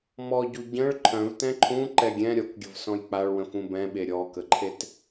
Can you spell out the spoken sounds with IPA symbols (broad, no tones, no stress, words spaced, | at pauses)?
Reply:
mɔɟu ɟə̃ɭ ǃʰœ̃vtɛ̃ ǃʰũǃɛ ɡʲɛ̃ ɾʲɔkɡʲəvsɔ̃j k͡paɭwə̃fũ bɛ̃ɓe ɾʲɔkəǃʰet